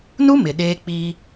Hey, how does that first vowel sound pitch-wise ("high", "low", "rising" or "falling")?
high